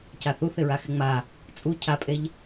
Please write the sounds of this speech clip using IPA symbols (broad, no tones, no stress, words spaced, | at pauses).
caθuθ ɪɹaxɪŋ͡ma | t͡sʼu cʰapʼeʎ